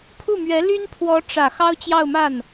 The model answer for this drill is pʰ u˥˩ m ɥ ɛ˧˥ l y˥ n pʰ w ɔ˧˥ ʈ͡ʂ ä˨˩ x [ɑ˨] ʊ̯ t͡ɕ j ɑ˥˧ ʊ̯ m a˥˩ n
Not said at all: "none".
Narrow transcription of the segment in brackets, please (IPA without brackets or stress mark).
ɑ˥